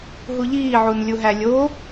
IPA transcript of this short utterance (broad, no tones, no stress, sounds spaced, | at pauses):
ɦ u ʎ iː ʕ u n lʲ u ɦ æ lʲ o